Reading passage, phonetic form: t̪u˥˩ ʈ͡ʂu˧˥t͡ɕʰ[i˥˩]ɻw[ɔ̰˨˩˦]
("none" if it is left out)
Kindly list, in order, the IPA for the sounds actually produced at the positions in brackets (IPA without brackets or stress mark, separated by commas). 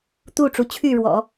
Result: y˥˩, ɔ̰˨˩˦